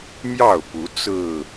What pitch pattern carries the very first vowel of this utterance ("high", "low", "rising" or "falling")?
falling